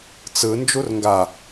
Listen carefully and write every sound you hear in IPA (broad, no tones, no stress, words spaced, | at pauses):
t͡sɯ nd͡ʒurŋɡa